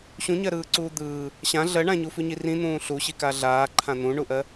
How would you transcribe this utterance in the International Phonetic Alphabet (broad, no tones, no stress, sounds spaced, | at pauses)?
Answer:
ɕ ũ ɲ ɜ ɾ ɯː ǀ uː d̪ ɯː | ɕ ã ɮ ɜ ɳ ã ɲ u f ʉ ɲ i r ĩ n̪ ũː ɬ u ɕ i k a ɮ aː ǃʰ ã n̪ ũ ɳ u ʔ ɜ